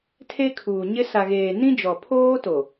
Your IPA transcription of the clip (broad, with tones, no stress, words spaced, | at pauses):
tʰe˦kʰuː˨ɲɪ˦ sa˨ɣeː˨ nĩ˦d͡ʒɔ˨pʰoː˦to˨